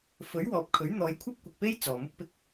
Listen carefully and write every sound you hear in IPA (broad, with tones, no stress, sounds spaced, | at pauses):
f ɵ˨˥ ɥ w ɔː˨ p̚ kʰ ɵ˨˥ ɥ n̪ ɔː˨˧ j kʷʰ ɐ˥ p̚ kʷ ɪ˨ k̚ p e˥ j t͡s ɔː˨ m ʊ˥ k̚ p ɪ˥ k̚